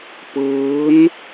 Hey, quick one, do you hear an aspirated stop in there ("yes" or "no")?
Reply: no